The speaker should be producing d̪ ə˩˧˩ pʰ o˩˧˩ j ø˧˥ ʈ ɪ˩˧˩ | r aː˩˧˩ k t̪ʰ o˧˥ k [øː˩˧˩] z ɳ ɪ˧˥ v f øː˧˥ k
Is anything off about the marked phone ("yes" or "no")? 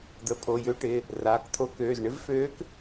no